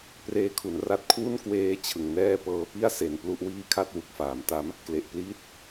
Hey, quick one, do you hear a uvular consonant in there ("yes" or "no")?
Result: no